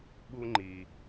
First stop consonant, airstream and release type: implosive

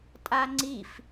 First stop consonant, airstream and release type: ejective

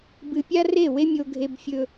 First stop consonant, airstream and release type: plain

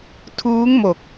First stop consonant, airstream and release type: aspirated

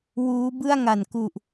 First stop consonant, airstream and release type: plain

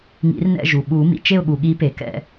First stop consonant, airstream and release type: implosive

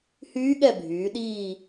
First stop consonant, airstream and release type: implosive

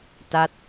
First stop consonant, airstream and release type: plain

